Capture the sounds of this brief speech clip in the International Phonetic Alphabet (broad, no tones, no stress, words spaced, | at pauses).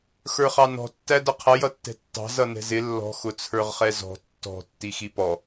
xə˞χɑnɔ̤ tːædʌqʰʌ jʌtːɛ̤tːɑ̤ zʌnɛ̤zɪ lːɔ̤ xʊt͡sʰə˞ʁχɛzɔ̤ tːɔ̤ tːixipɔ